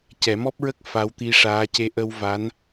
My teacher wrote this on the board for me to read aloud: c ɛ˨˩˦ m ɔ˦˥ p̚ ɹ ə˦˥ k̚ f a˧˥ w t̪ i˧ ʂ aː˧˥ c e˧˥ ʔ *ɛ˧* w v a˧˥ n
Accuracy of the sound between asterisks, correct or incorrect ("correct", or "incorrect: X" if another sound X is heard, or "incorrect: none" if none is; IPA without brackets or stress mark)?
incorrect: ə˧